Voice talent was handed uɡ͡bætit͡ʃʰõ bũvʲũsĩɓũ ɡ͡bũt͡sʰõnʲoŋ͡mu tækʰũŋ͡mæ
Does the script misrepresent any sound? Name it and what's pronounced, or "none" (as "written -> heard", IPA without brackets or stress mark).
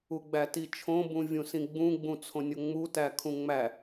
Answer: ɓ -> ɡ͡b